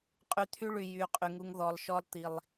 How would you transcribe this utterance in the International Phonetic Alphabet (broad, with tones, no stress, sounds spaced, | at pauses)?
qʼ y˨ t̪ʰ y˦ ɭ y˨ j y˨ qʼ y˨ ŋ u˦ ŋ ð ɔ˨ lˠ ʃ ɔ˦ lˠ t̪ i˨ lˠ